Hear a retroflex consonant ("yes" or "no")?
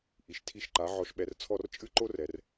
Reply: no